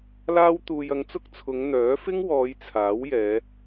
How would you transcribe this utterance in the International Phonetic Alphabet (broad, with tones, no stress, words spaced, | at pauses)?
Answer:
laː˥wt̪uː˧j ɐ˧ŋt͡sʊ˥k̚t͡sʰʊ˨˧ŋ n̪œː˨˥ fɪ˥ŋwɔː˨˧j t͡sʰaː˨˥wjɛː˨˧